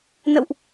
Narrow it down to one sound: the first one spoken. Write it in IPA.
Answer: n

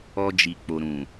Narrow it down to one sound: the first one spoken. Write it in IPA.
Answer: ɔ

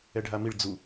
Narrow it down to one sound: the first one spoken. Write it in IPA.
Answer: ɛ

